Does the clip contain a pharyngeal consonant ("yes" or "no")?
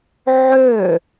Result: yes